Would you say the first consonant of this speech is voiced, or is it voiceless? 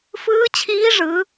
voiceless